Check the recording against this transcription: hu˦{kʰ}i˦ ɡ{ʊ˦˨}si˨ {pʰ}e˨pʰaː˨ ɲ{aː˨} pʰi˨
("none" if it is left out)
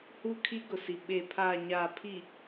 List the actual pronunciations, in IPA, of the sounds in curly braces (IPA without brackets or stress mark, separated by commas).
kʰ, ʊ˨, ɓ, aː˨